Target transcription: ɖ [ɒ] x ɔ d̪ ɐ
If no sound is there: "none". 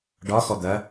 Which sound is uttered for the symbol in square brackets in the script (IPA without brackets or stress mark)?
ɒ